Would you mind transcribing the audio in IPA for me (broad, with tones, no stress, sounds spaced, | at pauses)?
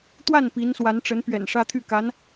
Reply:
t̪ w a˥˩ n p i˧˥ n s w a˧˥ n ʈ͡ʂ ə˧˥ n p ɥ ɛ̰˨˩ n ʂ ä˥ t̪ʰ y˥˩ k a˧˥ n